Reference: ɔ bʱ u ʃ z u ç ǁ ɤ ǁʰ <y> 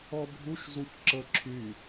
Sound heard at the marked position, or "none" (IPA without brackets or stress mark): y